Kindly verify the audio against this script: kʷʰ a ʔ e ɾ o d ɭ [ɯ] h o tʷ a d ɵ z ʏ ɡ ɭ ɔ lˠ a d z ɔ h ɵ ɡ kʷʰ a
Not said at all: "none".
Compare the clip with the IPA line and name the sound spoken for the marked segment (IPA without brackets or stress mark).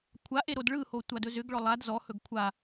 ɯ